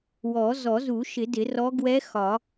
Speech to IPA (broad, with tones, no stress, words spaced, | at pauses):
wɔ˨˩˦zɔ˨˩˦zu˨˩˦ ʃɪ˨˩˦dɪ˨˩˦rɔ˧˥ ɡwɛ˧˥ xɒ˨˩˦